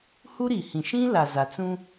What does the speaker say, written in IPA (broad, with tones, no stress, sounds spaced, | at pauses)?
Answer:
h u˦ ɾ i˨ h ĩ˨ ʃ ĩ˦ l a˨ z a˨ t͡s ũ˦